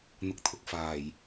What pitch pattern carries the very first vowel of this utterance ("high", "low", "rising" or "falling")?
low